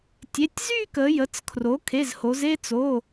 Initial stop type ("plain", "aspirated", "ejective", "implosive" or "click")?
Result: plain